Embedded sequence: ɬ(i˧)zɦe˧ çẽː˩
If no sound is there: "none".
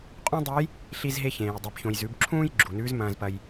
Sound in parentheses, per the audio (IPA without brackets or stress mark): i˧